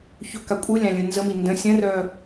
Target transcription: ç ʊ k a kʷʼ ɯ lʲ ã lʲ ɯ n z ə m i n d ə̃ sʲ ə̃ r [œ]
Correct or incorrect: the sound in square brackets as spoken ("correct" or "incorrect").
correct